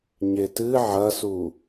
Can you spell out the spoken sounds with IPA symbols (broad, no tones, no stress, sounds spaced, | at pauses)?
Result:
ɲ e t ɨ ʕ ɐ s u